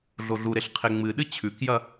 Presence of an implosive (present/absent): present